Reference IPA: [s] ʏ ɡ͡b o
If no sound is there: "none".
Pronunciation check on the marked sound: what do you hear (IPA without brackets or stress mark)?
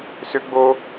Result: s